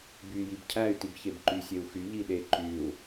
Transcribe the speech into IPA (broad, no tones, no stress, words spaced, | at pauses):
by jibcʰæy̯ tibçebǃy sʲeu̯xy ʎiɗe ǃyu̯